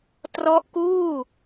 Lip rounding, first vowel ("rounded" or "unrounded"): rounded